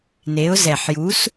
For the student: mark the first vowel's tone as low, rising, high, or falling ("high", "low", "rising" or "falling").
rising